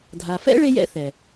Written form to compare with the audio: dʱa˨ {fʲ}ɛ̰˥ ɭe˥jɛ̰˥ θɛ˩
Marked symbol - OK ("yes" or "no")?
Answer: no